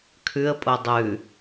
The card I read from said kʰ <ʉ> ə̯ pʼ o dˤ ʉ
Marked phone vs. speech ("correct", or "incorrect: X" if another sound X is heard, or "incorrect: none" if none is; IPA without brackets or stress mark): correct